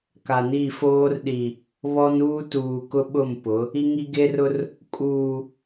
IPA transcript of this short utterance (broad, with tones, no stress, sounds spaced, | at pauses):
k a˨ n i˦˨ f oː˦ r ɗ i˨ | β ɔ˦ n uː˦ t uː˨ k ʊ˦ ɓ ʊ˦˨ m p ʊ˨˦ | i˦ ŋ i˦ ɡ e˦ r ʊ˦ r | kʼ uː˨